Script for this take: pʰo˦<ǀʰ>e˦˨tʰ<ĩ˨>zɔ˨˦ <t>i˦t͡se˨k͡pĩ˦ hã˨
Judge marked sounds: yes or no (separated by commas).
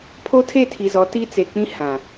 no, no, yes